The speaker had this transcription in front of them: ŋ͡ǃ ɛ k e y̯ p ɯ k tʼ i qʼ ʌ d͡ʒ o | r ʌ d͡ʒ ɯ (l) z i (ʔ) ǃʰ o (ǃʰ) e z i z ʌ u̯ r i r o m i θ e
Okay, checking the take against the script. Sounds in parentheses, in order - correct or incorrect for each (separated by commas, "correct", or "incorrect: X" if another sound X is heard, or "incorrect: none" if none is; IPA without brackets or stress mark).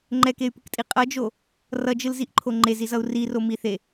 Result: correct, correct, incorrect: ŋ͡ǃ